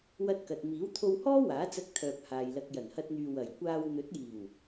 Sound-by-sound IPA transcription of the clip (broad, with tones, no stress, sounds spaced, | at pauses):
w ɐ˥ t̚ k ɐ˧ t̚ m iː˨˥ w t̪ʰ o˧ w h ɔː˥ w aː˨˥ t͡s ɐ˧ k̚ t̪ʰ œː˨ p̚ h aː˨ j l ɐ˧ k̚ j ɐ˨˩ n h ɐ˧ t̚ n̪ yː˨ w ɐ˨˩ j kʷ aː˧ w n̪ ɵ˨˥ t̚ j iː˨˩ w